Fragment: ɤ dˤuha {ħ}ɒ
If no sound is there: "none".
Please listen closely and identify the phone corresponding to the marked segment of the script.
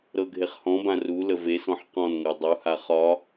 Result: χ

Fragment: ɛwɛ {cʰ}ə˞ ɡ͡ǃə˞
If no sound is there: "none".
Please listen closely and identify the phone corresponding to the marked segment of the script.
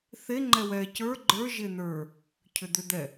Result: c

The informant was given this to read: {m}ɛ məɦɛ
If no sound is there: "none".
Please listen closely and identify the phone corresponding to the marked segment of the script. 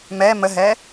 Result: m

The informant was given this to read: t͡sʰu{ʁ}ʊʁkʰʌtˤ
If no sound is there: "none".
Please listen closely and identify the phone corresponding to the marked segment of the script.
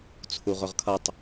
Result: ʁ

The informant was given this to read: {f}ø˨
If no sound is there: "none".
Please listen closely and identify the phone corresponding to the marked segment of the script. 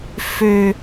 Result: f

